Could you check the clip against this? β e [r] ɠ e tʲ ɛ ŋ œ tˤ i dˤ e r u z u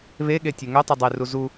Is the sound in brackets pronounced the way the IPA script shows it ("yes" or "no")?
no